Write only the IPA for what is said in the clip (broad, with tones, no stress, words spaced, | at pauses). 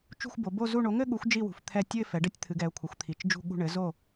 t͡ʃṳ˦˨xʷbo˩˧ bo˦˨zu˦˨ ɳo˩˧ŋɘ˦˨ɠu˩˧xʷ d͡ʒi˦˨wṳ˩˧ft̪ʰɛ˦˨ tʲɨ˦˨ɪ̯fɛ˩˧ɖɘ˦˨tʲ t̪ʰɨ˩˧ɡɛ˩˧ʊ̯kʷʰɘ˩˧xʷ t̪ʰi˩˧t͡ʃ d͡ʒṳ˦˨ɠṳ˦˨ ɳɘ˩˧zo˦˨